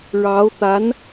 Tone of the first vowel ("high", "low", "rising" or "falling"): rising